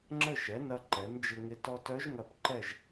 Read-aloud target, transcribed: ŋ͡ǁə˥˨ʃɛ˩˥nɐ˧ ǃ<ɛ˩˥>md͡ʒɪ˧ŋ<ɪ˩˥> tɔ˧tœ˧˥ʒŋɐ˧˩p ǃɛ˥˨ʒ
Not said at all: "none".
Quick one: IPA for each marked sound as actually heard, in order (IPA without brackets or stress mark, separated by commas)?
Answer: ɛ˩˥, ɪ˧˥